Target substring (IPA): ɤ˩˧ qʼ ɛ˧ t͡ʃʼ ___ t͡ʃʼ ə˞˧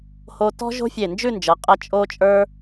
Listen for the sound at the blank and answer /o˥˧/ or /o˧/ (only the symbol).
o˧